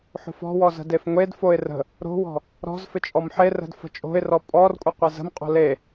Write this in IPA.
ħ o̤ f ɔ̤ w ɔ z ə̤ d e f ŋʷ e d f o ɪ̯ r ə̤ | ɾ o̤ w ɔ̤ | ɾ ɔ̤ z f ɪ t͡ʃʼ ɔ m ħ e r ə̤ d f ə̤ t͡ʃʼ o̤ ɪ̯ r ɔ pʼ ɔ r kʷʼ ɪ qʷ ɪ z ə̤ m qʼ o̤ l e

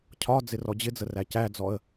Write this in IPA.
cʰ ɒ d͡z ɪ r ɔ d͡ʑ ɪ d͡z ə r æ c æ d͡z ɔ ə̯

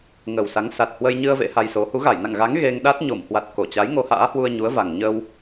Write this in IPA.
ŋ ə˨˩ w s a˨˦ ŋ s a˨˩ t̚ h w ə˧ j ɲ ɨ˧ ə̯ v ḛ˧˥ h a˧ j s o˨˦ h u˨˦ ɣ a˧˩ j n a̰˧˨ ŋ ɣ a˨˦ ŋ ɣ e˧ ŋ ɗ a˦˥ t̚ ɲ o˧˩ m h w a˨˩ t̚ k o˧˩ t͡ɕ a˨˦ j ŋ o˧ h a̰ː˧˥ h w u˧ ə̯ ɲ u˨˦ ə̯ v a˨˩ ŋ ɲ ə˧ w

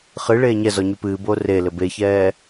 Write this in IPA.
χ ɨ ɭ eː ɲ ɛ z ɔ ɲ y p ɨː b oː r e l ɘ b e ç ɛː

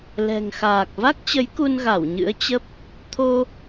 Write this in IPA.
l ɛ̤˨˩ ŋ x aː˨˩ k̚ v a˦˥ k̚ t͡ɕ ə˨˦ j k u˧ n ɣ a˧˩ w ɲ ɨ̰˧˥ ə̯ t͡ɕ ə˦˥ p̚ | t̪ʰ o˧

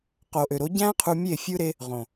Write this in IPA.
q o˨ ʔ ø˨ ɾ o˨˦ ɟ æ̃˦ qʰ u˧ mʲ e˦˨ fʲ ɯ˦ ɾ e˦ | ʁ õ˨

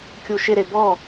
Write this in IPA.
kʲ u ʃ ɪ ɾ e b ɔ

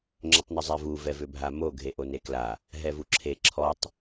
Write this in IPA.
ŋ͡ǁ ʏ tˤ n ʏ zˤ ɛ v u v ɛ v ʏ bʱ a m o ɡʱ e ʔ o n e k l a | ɦ ɛ v u ǁʰ e ǁʰ ɔ tˤ

